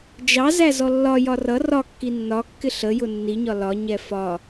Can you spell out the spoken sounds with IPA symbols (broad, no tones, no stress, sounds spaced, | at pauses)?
d͡ʒ ɑ z æ z ɔ lː ɒ j ɒ r ʌ r ɒ kː i nː ɒ kː ɪ ɬ ə j ʊ nː i ɲ ɒ l ɒ ɲ ɛ f ɒ